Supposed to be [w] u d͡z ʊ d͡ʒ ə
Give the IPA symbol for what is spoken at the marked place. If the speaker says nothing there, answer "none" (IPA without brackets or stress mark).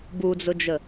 b